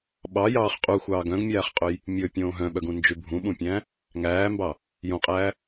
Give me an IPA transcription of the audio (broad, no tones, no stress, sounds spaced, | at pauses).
ɓ ɑ j ɑː χ qʼ u xʷ ɑː ɡ œ̃ ɡ mʲ æː χ qʼ ɵ j | mʲ ɵ pʲ õː ɦ œ̃ ɓ œ ɡ ũ n d͡ʒ ʉ bʱ ũ ɓ ũ pʲ æ̃ | ŋ æː m b ɑ | j õ qʼ æː